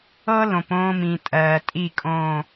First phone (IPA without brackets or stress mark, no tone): ɤ